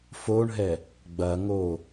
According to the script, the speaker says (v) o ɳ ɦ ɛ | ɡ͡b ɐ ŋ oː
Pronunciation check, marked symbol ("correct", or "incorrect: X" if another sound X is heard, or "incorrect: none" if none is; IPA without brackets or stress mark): incorrect: f